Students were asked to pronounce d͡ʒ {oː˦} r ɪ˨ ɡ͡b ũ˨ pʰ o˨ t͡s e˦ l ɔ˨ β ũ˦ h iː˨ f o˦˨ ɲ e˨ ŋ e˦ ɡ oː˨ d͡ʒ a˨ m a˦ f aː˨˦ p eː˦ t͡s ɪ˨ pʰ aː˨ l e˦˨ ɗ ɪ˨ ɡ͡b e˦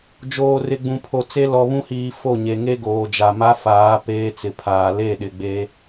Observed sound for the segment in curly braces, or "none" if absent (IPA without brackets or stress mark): oː˨